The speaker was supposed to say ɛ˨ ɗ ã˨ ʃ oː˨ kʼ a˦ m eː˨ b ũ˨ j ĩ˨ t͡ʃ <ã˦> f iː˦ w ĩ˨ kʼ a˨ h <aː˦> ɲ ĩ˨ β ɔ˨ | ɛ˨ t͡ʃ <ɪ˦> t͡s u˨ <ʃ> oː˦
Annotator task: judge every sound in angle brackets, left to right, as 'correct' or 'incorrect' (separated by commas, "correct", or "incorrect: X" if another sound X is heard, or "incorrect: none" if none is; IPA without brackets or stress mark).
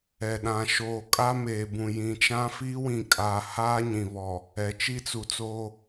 correct, correct, incorrect: i˦, incorrect: t͡s